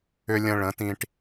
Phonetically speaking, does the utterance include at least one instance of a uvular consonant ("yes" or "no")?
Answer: no